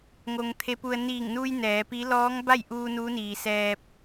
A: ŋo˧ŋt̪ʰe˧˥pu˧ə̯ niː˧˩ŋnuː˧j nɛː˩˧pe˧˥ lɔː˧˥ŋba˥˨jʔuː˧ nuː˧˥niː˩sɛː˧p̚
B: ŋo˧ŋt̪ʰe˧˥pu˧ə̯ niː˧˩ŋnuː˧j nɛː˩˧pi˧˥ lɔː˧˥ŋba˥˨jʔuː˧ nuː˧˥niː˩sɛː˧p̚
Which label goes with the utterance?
B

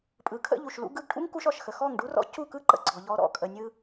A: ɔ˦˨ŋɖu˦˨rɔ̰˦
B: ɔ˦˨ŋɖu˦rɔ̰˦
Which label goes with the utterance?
B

